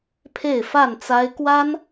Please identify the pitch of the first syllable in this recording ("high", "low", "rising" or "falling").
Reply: falling